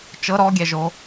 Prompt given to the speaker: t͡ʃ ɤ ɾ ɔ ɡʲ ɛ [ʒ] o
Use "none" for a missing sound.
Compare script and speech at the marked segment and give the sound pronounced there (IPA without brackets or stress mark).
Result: ʒ